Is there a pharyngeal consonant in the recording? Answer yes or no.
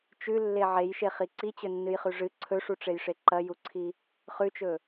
yes